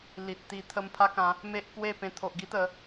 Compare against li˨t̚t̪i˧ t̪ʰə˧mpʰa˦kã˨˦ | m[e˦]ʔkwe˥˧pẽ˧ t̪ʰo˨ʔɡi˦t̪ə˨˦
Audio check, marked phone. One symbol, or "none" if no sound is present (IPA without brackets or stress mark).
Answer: e˦